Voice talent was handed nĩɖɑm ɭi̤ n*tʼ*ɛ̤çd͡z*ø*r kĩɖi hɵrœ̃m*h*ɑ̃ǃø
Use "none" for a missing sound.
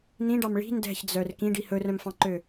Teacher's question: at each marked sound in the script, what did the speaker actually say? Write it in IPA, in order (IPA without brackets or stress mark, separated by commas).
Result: d, œ, f